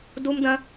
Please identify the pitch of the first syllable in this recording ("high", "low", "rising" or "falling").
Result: high